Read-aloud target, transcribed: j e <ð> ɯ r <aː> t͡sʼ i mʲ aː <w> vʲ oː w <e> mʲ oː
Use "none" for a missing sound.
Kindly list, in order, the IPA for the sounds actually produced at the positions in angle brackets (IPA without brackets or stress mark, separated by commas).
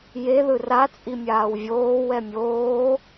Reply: ð, a, w, ɛ